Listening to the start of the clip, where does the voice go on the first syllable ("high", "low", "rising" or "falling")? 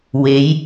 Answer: rising